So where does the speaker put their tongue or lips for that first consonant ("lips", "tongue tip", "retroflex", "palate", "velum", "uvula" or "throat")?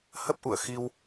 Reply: throat